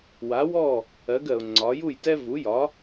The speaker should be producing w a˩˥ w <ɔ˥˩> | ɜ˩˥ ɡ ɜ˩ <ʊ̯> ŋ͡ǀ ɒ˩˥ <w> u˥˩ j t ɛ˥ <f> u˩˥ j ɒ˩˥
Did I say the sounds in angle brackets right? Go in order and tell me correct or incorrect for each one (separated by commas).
correct, correct, incorrect, incorrect